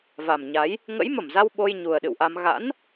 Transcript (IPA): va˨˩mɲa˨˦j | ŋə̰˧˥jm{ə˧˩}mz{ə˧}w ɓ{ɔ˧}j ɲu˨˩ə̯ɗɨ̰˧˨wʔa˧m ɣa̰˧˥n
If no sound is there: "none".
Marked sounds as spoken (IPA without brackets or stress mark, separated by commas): ə˧˩, a˧, o˧